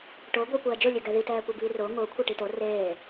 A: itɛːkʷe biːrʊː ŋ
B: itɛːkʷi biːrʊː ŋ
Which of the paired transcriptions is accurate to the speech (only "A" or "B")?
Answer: B